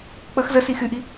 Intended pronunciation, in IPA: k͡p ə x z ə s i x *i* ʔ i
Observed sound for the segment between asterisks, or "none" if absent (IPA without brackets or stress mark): y